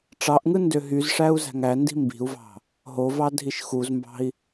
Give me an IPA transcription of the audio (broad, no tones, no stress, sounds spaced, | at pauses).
ʈ͡ʂ ɑ ʔ ŋ ɯ n d ø ɦ y z ʂ æ u̯ z æ̤ ŋ æ n d i̤ m b i̤ u̯ v ɑ̤ | ɦ o v ɑ dʱ i ʃ x u z m b ɑ̤ i̯